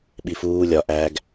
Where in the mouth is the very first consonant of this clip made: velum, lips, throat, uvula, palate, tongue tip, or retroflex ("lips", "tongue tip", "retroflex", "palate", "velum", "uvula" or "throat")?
lips